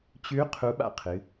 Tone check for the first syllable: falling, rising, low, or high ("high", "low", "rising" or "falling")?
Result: rising